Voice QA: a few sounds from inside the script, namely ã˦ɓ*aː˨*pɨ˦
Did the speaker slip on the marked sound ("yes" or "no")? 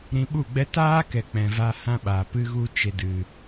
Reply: no